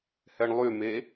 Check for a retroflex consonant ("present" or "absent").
present